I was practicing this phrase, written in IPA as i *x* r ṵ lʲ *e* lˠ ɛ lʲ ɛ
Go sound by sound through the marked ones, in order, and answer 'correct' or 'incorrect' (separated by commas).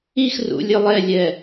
correct, incorrect